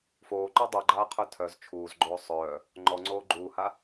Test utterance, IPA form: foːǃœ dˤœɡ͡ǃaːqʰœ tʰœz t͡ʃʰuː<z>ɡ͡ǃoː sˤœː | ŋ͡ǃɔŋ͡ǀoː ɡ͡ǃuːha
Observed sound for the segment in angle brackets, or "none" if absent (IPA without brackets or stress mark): z